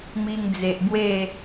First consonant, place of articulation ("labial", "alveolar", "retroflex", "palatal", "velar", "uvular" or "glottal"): labial